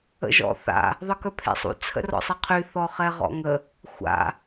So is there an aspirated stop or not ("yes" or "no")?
yes